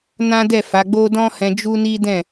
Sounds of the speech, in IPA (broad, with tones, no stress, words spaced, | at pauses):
nã˦dɛ˦˨fa˨˦ɡ͡bo˦ dɔ̃˦hɛ̃˧d͡ʒu˦ni˦ dɛ̃˦˨